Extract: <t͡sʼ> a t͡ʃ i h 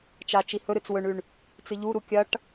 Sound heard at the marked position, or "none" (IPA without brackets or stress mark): t͡ʃ